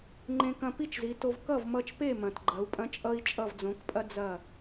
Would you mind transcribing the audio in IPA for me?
ŋ͡ǃẽ˧kɐ̃˧ pi˥t͡ʃzi˩˥to˧v kʌ˥˩vmʌ˧t͡ʃpe˥˩mɐ̃˩t ɡ͡ǃɐ˩˥u̯pʼɐ̃˥ t͡ʃʼʌ˥i̯ t͡ʃʼʌ˥˩vd͡zõ˩˥kpʼɐ˥ d͡zɐ˥˩

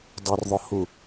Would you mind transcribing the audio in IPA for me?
dˤɪrðˤʊhu

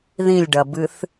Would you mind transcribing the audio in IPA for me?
ðĩlʲɖɐbɨθ

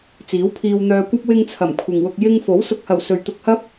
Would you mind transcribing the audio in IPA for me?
t͡siː˨˥wpʰiː˧wn̪œː˧kʷɐ˥p̚ wɪ˧ŋt͡sʰɐ˨˩m kʷʰɪ˨ŋwʊ˧k̚ jɪ˧ŋ fo˨˥w sʊ˨k̚hɐ˨˩w sɵ˨ɥ t̪ʊ˧k̚hɐ˥p̚

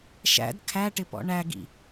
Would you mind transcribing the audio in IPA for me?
ʃæ̰d kʰæʈɪ pɔ̰ɳæɡḭ

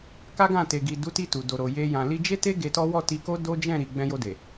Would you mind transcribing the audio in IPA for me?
ka˦ɡã˦˨ te˨ɡi˨ du˨˦ti˧ tu˨ do˨ɾo˨ je˧ jã˨li˧ d͡ʒe˦te˦ ɡe˧tɔ˦ wɔ˦˨ti˧ko˦ do˦d͡ʒɛ̃˦˨ɾi˨ ɡ͡bɛ̃˧jo˧de˨

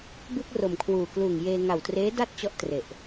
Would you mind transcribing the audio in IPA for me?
bɯ˥˩k̚ ro˨˩mkʰwuː˨˩ kluː˨˩ŋjeː˧ ŋa˨˩wtreː˦˥da˥˩t̚t͡ɕɔ˦˥ʔ tre˨˩ʔ

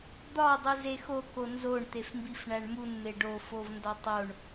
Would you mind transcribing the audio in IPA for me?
d̪ɒ dˤuzexo konzoɳ t̪efmbifɳæɳmun meɖo fovndɒtˤoɳ

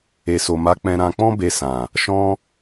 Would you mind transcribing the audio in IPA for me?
e˨so˨ma˨˦k͡pɛ̃˧ ɾã˧k͡pɔ̃˦be˧sã˨ | ʃɔ̃˧

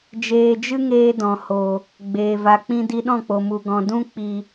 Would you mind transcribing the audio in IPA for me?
d͡ʒeː˧d͡ʒɨ˦ŋeː˧ dɔ̃˨ho˨ | ɡ͡beː˨ va˨k͡pĩ˧ di˧ɗɔ̃˦˨k͡po˨mu˨ ɡɔ̃˨ dũ˧k͡pi˨

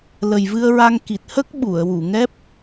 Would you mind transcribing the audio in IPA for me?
lə˨˩jvɨ˧ə̯ɹa˧ŋ ki˨˩t̚hə˦˥k̚ ɓu˨˩˨ə̯wu˨˩˨ŋɛ˦˥p̚

